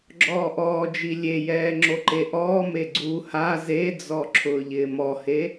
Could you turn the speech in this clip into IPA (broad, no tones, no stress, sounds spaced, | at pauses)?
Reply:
ɡ͡ǁ ɔː ʔ ɔː d͡ʒ i lʲ e j ɛː ŋ͡ǁ o ǃ e ʔ ɔː m e ɡ͡ǀ u h a z e d͡z ɔ ǁʰ ʊː ʎ ɪː m ɔ h e